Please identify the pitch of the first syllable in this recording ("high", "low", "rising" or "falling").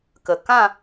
low